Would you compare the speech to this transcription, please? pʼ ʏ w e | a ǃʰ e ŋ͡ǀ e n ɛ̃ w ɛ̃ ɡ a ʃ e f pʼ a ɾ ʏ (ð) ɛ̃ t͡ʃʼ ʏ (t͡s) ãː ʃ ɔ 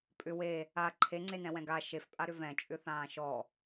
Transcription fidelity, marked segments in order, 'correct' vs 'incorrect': incorrect: v, incorrect: θ

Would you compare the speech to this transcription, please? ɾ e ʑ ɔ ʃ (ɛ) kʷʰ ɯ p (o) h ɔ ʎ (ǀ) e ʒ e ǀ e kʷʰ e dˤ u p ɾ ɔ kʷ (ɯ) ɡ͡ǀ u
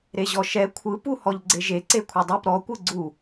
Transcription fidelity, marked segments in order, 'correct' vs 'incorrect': correct, incorrect: u, incorrect: ɡ͡ǀ, correct

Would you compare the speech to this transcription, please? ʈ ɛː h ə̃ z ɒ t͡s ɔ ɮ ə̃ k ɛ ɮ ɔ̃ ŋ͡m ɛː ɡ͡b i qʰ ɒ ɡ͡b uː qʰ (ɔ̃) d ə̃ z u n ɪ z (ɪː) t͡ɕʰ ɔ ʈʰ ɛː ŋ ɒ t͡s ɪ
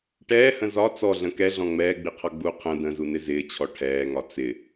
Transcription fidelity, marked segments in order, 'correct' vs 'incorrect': incorrect: ə̃, correct

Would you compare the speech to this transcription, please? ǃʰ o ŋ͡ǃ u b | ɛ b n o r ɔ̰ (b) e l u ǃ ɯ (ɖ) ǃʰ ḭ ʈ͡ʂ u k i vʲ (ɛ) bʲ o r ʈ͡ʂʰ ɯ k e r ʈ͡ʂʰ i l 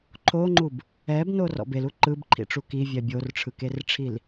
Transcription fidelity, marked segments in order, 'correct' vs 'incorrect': correct, incorrect: b, correct

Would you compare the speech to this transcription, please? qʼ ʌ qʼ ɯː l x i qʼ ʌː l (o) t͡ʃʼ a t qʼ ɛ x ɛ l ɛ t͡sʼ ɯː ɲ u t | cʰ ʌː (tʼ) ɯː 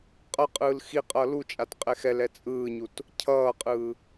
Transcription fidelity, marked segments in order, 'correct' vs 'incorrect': incorrect: u, incorrect: qʼ

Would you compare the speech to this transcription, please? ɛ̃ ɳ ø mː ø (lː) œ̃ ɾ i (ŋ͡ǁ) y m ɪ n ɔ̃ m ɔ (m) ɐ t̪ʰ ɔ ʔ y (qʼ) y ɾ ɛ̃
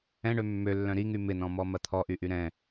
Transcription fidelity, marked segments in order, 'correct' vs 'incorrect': correct, incorrect: ŋ, correct, incorrect: ʔ

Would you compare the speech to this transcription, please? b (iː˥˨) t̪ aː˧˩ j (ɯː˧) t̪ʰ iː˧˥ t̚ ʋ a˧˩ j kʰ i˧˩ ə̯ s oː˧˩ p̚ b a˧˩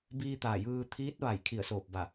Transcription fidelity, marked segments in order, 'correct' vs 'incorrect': incorrect: iː˧, correct

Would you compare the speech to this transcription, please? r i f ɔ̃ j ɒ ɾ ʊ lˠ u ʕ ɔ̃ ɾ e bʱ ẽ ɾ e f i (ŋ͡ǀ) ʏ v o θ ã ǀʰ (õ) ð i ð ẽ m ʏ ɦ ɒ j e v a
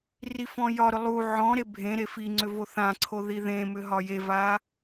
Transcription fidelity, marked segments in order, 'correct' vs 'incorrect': correct, incorrect: o

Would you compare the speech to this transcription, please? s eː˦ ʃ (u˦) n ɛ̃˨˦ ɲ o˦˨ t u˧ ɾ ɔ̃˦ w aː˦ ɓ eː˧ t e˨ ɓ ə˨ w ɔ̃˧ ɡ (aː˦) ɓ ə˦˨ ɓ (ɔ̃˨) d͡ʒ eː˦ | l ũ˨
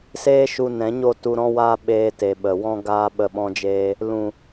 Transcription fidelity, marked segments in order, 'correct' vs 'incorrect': incorrect: u˧, correct, incorrect: ɔ̃˦

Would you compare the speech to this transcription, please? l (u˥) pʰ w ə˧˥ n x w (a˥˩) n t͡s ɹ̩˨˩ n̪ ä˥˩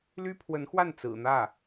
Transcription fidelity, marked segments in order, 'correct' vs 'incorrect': incorrect: y˥, correct

